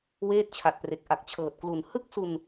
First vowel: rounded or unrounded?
unrounded